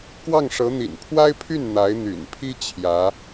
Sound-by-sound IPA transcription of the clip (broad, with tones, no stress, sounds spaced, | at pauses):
k w ɑ˥˩ ŋ ʂ ɤ˧˥ n̪ ḭ˨˩ n pʰ w a˥ ɪ̯ pʰ y˥˩ n n̪ a˧˥ ɪ̯ n̪ y̰˨˩ n pʰ i˥ t͡ɕʰ j ä˧˥